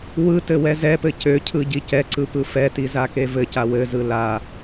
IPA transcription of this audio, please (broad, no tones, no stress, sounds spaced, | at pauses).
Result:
w ɯ t ɘ w ɛ z ɛ p ɘ c ø cʰ ɯ ɟ i c ɛ ǀ ɯ p ɯ f ɛ t i z a k e v ɘ c a w ɘ z ɯ l a